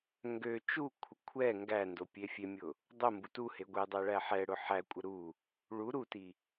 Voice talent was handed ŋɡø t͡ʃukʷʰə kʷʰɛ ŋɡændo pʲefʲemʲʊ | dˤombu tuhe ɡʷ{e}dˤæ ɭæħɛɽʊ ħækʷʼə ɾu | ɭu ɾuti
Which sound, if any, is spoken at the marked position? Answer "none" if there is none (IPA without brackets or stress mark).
e